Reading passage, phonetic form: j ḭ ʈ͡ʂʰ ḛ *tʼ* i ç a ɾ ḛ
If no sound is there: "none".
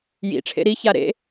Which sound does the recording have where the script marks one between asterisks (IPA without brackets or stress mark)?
ɾ